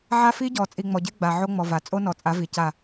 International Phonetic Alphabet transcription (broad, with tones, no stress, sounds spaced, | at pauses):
ʕ a˦ f i˦ ɟ ɔ˨ t͡sʼ i˨ ŋ͡m ɔ˨ ɟ e˦ ɡ͡b a˨ ʕ o˦ ŋ͡m ɔ˨ v a˨ t͡sʼ o˦ n ɔ˨ t͡sʼ a˨˦ v i˨ c a˦˨